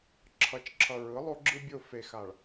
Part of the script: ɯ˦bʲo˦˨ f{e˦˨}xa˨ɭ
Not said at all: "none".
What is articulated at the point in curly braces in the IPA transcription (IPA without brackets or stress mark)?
e˨